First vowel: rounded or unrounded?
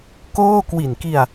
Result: rounded